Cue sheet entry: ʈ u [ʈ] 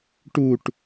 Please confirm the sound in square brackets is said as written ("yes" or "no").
yes